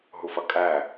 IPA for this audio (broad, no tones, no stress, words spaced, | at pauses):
ɦufʌkʼæ